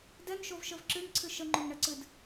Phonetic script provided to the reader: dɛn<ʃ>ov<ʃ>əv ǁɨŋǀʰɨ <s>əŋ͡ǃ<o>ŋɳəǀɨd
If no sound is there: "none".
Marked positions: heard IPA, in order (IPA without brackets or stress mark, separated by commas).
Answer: ʃ, ʃ, ʃ, o